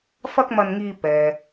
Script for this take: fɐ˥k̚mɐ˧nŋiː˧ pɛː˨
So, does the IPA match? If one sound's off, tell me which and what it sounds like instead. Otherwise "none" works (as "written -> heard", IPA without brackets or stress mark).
none